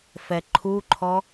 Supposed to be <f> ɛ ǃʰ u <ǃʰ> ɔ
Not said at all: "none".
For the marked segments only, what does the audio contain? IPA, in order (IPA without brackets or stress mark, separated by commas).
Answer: f, ǃʰ